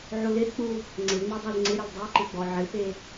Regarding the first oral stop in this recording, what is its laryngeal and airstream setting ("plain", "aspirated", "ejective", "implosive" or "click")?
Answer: plain